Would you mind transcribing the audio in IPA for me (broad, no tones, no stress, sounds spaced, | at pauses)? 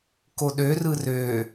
k o ɗ ø r ɯ r ø